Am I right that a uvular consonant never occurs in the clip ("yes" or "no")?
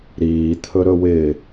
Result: yes